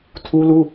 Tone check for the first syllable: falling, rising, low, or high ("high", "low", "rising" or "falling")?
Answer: high